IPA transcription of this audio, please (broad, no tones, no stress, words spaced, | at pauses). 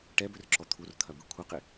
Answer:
ʈɛbʏrǁɔ t̪ʰurt̪ʰɐbɯ kʷʰɐqɪ